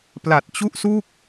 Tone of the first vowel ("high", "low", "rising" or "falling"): low